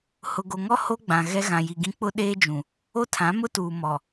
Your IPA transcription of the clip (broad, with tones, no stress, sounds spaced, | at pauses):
h ʊ˨ ɡ o˨ ŋ ɔ˦ h o˦ ɡ͡b ã˨ ɣ ɛ˦ ɣ ã˨ j i˨ ɡ ĩ˦ k͡p ʊ˦ ɗ eː˦ d͡ʒ ũ˨ | o˦ tʰ ã˨˦ m ʊ˦ t uː˨ m ɔ˨